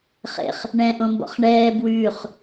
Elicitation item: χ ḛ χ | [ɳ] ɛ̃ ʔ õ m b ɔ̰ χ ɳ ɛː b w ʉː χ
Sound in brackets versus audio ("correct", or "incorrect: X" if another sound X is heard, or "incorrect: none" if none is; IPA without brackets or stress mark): correct